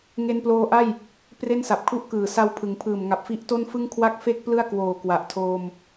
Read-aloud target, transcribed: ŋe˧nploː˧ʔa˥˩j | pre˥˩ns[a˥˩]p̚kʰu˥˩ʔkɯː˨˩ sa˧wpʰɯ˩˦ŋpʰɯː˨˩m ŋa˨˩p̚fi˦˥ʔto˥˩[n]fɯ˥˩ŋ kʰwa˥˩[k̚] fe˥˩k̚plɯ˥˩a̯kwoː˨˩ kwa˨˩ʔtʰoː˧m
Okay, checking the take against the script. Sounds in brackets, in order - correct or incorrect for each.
incorrect, correct, correct

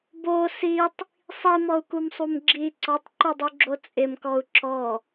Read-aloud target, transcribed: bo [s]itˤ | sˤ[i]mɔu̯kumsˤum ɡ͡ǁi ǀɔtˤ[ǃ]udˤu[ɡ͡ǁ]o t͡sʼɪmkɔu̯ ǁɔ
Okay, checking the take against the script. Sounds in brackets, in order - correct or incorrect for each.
correct, correct, correct, correct

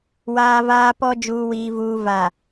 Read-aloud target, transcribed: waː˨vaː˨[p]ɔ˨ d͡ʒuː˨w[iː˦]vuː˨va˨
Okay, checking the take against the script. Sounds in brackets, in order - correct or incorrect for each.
correct, incorrect

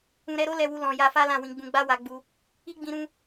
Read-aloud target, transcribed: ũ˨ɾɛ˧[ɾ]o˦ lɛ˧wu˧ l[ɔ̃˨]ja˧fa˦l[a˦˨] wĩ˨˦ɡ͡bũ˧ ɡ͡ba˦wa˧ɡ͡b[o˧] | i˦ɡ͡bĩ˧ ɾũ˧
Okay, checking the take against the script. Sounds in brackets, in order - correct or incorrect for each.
correct, correct, incorrect, incorrect

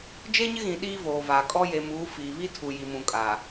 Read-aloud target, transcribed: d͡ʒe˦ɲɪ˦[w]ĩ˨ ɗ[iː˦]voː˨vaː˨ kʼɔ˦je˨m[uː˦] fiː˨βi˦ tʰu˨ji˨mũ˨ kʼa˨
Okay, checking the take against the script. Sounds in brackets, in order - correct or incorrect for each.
incorrect, correct, incorrect

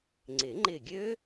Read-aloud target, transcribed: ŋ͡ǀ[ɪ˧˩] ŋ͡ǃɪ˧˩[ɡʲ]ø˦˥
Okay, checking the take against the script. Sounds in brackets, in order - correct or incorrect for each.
incorrect, correct

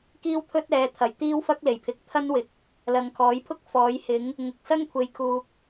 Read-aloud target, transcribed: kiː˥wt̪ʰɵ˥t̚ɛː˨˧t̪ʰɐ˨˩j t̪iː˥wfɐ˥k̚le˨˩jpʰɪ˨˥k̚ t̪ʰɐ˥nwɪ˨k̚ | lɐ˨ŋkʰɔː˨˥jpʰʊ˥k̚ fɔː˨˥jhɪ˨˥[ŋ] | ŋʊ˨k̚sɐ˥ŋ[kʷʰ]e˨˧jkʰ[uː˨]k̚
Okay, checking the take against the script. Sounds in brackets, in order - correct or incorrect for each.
correct, correct, correct

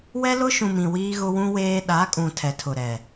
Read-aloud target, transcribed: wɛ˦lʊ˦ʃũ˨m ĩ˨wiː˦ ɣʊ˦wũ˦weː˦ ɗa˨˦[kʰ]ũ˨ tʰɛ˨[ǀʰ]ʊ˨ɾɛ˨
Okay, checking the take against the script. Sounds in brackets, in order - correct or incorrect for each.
incorrect, incorrect

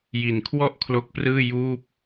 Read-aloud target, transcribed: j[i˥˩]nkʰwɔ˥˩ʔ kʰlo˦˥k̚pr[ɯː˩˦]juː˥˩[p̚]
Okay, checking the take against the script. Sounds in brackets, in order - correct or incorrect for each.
incorrect, incorrect, correct

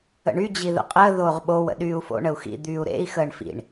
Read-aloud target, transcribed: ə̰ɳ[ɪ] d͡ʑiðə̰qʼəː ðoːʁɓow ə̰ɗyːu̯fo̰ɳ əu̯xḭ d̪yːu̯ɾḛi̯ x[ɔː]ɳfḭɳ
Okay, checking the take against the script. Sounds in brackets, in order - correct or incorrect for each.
incorrect, incorrect

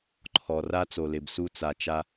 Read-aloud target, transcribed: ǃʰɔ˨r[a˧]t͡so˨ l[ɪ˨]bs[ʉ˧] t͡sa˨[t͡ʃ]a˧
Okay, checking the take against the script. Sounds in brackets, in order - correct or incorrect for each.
correct, correct, incorrect, correct

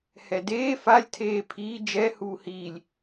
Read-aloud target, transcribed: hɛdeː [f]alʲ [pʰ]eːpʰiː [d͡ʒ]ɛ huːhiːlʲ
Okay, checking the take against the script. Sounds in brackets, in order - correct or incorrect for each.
correct, incorrect, correct

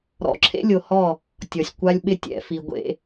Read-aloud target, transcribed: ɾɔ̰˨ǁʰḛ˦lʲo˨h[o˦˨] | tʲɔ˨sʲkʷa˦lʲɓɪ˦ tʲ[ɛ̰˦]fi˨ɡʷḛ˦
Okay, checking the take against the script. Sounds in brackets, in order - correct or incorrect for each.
incorrect, incorrect

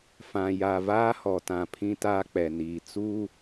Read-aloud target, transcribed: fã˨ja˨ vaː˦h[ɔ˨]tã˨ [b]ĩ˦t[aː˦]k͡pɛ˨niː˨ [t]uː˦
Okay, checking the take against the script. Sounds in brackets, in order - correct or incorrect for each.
correct, incorrect, correct, incorrect

